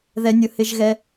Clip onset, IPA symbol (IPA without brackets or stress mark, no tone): ð